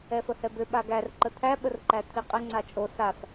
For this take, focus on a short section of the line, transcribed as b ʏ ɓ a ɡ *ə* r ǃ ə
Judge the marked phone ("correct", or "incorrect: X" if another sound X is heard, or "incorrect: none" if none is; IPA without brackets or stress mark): incorrect: æ